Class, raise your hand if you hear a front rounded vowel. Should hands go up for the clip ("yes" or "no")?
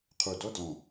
no